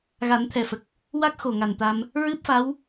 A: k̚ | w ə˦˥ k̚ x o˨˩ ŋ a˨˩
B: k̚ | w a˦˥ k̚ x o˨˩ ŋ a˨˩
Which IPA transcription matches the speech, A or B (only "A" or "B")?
B